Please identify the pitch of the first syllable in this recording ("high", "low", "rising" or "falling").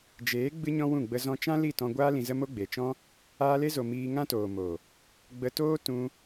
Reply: rising